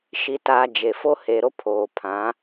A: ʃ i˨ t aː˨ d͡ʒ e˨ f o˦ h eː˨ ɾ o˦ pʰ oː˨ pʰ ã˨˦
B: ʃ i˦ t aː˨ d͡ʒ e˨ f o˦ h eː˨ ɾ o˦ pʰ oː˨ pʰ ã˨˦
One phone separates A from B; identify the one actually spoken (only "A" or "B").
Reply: A